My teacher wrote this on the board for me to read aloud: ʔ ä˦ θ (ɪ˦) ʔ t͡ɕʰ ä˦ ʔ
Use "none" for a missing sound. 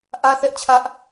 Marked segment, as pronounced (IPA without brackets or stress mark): ɛ˦